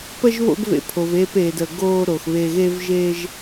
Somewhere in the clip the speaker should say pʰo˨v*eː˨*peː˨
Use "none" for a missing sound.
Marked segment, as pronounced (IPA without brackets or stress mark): eː˧